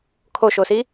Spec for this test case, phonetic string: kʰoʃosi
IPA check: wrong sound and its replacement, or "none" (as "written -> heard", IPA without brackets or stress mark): none